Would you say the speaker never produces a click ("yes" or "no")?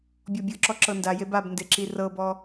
no